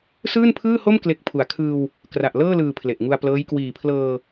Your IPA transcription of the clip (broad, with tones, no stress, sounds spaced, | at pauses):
s ɯː˥˩ n pʰ ɯː˥˩ h o˥˩ m k l e˦˥ k̚ pʰ u˨˩ a̯ kʰ ɯː˧ w | k r a˨˩ ʔ l ɤː˥˩ l ɯː˨˩ pʰ l e˨˩ ʔ ŋ u˧ a̯ p l ɤː˦˥ j k w iː˨˩ pʰ l ɤː˧